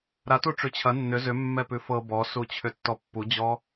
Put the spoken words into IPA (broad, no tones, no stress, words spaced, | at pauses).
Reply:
ɾa tuʈ͡ʂʉt͡ɕʰɐ nːʏ zʏ mːɛpʉfɤ bɔsut͡ɕʰʏtːɔ pːud͡ʑɔ